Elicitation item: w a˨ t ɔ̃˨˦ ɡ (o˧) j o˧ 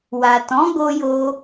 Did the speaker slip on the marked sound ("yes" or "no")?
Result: no